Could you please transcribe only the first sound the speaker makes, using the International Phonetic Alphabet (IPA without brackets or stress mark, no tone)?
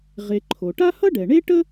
ʁ